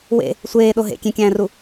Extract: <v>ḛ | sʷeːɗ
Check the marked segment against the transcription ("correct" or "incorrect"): incorrect